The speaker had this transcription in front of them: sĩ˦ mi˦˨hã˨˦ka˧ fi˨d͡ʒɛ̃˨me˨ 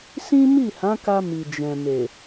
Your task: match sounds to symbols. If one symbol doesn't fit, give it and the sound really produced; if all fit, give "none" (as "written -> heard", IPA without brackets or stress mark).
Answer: f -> m